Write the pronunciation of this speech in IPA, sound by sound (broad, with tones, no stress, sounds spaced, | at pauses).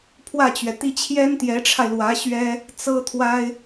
pʰ w ä˥˩ t͡ɕ ɥ ɛ˩ t̪ i˥ t͡ɕʰ j ɛ˥ n t̪ j ɛ˧˥ ʈ͡ʂʰ a˧ ɪ̯ l w ä˧˥ ɕ ɥ ɛ˥ | t͡s ɤ˥ t̪ʰ w a˥ ɪ̯